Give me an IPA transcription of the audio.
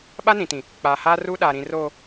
ɓ a˦ n ĩ˨ t ĩ˨ | k͡p aː˨ h aː˦ r uː˦ ɗ aː˨ ɾ ĩ˨ r oː˨

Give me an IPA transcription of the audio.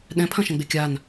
ɗ ɛ̃ pʰ ɐ̃ ʃ ɐ̃ ɡ͡b e kʲ a n

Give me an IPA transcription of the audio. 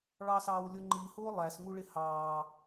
ɭ ɑ s ɑː w lʲ ʊ ŋ͡ǃ i h ʊː lˠ æ s ŋ u ɭ ɪ h ɑː

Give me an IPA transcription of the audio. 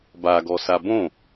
b a ɡ ɔ s a b õ

